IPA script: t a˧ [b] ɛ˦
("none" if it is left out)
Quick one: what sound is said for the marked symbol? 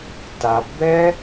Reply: b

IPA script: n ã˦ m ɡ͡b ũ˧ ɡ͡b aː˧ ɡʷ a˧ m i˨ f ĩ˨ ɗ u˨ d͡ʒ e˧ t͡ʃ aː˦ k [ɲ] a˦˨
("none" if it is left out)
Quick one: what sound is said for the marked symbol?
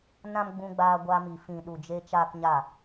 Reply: ɲ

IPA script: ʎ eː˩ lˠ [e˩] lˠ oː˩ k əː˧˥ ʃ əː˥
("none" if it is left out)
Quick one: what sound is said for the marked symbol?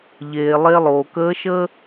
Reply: e˧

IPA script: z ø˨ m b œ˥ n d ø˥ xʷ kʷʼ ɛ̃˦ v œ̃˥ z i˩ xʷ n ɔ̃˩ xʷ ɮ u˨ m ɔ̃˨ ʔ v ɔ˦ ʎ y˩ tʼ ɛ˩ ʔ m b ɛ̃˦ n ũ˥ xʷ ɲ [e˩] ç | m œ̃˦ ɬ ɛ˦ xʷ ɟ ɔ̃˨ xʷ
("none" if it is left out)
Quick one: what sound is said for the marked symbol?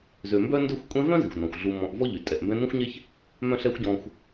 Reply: e˥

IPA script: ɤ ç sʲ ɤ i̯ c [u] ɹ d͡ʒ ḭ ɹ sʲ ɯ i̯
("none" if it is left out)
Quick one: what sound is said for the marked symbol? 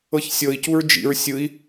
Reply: u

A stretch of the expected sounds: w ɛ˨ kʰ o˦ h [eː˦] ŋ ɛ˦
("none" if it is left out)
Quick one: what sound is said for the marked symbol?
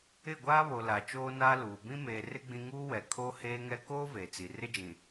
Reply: eː˦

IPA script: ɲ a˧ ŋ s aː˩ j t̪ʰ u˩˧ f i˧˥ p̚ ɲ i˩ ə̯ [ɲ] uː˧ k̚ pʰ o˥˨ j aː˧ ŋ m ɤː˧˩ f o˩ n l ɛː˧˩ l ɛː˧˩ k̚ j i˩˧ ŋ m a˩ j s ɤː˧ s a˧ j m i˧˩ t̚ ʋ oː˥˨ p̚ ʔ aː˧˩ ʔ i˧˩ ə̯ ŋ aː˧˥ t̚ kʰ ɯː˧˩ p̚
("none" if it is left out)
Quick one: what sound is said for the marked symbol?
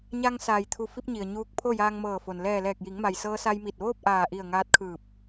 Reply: ɲ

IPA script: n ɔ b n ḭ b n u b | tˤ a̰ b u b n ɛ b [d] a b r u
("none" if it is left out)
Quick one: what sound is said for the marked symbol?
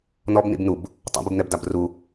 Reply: d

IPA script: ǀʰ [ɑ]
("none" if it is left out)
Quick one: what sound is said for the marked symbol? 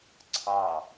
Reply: ɑ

